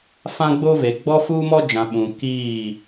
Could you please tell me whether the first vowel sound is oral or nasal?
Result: nasal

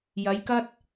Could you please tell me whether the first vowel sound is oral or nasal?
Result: oral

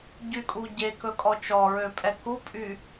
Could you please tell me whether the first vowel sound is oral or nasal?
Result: oral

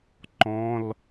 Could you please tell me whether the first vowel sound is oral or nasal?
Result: nasal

